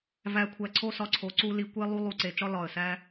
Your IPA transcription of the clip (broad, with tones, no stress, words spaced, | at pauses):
væ˨˩kʷʰæ˨˩ǀʰo˧ sɒ˧ǀʰo˨˩ǀu˧ li˨˩kʷe˧ lˠu˧ lˠu˨˩ǀe˨˩t͡ʃɒ˧ lɒ˨˩ə̯sæ˧